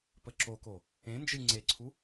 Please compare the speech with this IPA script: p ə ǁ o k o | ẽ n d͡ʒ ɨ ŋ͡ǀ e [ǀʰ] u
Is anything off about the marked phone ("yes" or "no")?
no